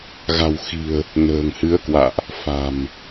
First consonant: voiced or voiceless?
voiced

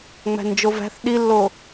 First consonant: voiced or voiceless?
voiced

